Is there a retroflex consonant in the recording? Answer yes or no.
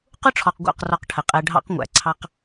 yes